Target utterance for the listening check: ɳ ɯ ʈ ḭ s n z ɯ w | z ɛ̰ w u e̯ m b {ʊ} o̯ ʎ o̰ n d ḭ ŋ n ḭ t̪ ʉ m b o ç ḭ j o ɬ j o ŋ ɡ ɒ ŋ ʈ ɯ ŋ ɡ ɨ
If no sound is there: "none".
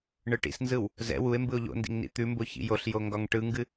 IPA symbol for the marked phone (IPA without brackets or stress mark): ɯ